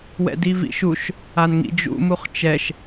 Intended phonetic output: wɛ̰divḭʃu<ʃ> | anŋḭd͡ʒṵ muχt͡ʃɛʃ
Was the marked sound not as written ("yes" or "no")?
no